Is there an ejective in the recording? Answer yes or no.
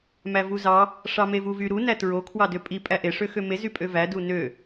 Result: yes